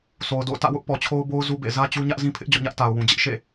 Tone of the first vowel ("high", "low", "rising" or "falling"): low